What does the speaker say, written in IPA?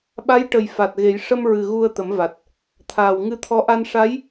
ɓa˧˥jʈə˨˩j fa˨˩t̚ɣe˨˩˦j ʂə˧mɹɨ˨˩ ɣu˧ə̯t̪ə˨˩˦mva˨˩t̚ | t̪ʰaː˨˩wŋɨ˧t̪ʰɔ˧˥ ʔa˧n ʂa˧˥j

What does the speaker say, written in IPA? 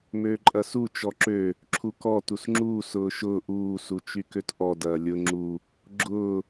møːǃʼɐsu t͡ʃɔǁø | ǁʰukɔ tusŋ͡ǁuː sʊːʃʊː ʔuː sut͡ʃykøtʔɔ dɐːlʲʊ ŋ͡ǁu | ɡ͡ǁʊː

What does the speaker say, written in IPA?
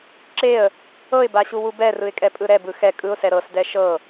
ǁeə̯ | ɤɪ̯baɕuwu bɛrɯɪ̯kʼɛpʼɯ ɾɛbɯ xɛ kʼɯʊ̯sɛ ɾɤsdɛ ʃɤ

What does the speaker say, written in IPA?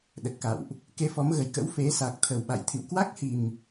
ɗə˨˩t̚ka̰˧˨wʔ | ke˧fɔ˨˦mɣə˨˩j kə̰˧˥wfe˨˦ sa˨˩k̚t̪ʰə˨˩wɓa̰˧˨jt̪ʰḭ˧˨w kwa˦˥k̚hi˨˩m

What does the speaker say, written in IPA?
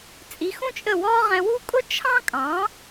t͡sʼi˩˥xũ˥t͡ʃʼə˥˩wɔː˥ ʁɛ̃˧wu˥ kʼʊ˥t͡ʃʰɑ̃˥kʼɑ̃˩˥

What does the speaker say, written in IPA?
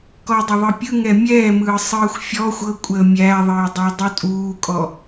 kɔdˤəðˤɯpʲɯ ŋɛmʲɛːmɯː sˤɯːxʷfʲɔ xʷɤ kʷʼəːmʲæðˤəːdˤɛ dˤutʼuːkʼɔ

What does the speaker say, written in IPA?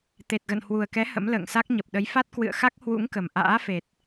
t̪e˨˩t̚ɣə̰˧˨nhwu˨˩ə̯kɛ˨˦ hə̰˧˥mlə̰ː˧˨ŋsa˦˥k̚ ɲə˨˩p̚ɗə˨˦jfa˦˥t̚ kwɨ̰˧˨ə̯ xa˦˥k̚hwṵ˧˥ŋ kə˨˩m ʔa̰ː˧˥fe˨˩t̚

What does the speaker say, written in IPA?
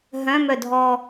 ɦœ̃mœdʱɔ

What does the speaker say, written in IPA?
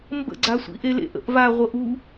mbə̰ ɡ͡ǀasʷḭʔelḛʔ ə̰ʔva ʁʷɤʔu

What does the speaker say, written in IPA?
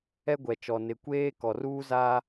ɛ˦ɡʷɛ˨t͡ʃɔ˨ nɪ˨kʷeː˦ kɔ˨ruː˦zaː˦

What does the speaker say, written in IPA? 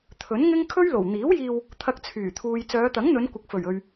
t̪ʰɵ˨˥nŋɪ˥ŋ kʰɵ˥ɥlo˨˩w n̪iː˨˥wjiː˧w | t̪ʰɐ˧k̚t͡sʰyː˨˩t̪ʰuː˨j t͡sœː˨˧t̪ɐ˨˥ŋn̪ɵ˨˧n kʷɪ˨k̚fɵ˨˩ɥɵ˨ɥ

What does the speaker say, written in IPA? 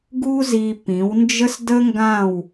ɡu˦zi˧ pĩ˨˦wnd͡ʒə˦sdə˦ŋɡã˦˨w

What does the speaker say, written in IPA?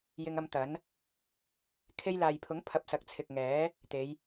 jɪ˧ŋ ɐ˧m t̪ɐ˨˥n | kʰe˧jlaː˨jpʰʊ˨˥ŋ pʰɐ˧p̚sɐ˨˥k̚ t͡sʰɪ˨k̚ ŋɛː˨˥ | t̪e˨˧j

